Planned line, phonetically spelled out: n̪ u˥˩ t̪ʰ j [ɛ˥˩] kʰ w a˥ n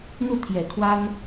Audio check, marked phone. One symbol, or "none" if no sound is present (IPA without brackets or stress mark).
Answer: ɛ˨˩